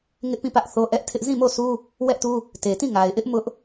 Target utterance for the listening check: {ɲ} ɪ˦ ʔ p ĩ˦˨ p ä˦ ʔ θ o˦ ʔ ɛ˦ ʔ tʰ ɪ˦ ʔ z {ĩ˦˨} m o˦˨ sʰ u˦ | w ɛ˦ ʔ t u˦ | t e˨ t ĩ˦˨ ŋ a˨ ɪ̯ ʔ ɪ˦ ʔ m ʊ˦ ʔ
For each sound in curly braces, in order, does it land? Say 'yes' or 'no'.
no, yes

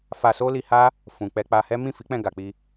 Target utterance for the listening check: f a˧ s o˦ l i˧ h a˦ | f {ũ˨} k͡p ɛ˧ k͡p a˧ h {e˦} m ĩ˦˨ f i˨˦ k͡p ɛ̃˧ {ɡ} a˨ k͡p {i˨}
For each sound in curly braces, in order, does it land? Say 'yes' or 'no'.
yes, no, yes, no

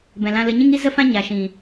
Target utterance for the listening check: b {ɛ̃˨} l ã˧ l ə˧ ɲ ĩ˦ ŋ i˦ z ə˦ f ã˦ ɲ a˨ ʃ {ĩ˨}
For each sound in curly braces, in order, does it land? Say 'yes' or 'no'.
yes, yes

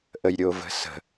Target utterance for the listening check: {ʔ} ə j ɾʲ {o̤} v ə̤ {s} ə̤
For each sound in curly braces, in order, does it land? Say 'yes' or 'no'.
yes, no, yes

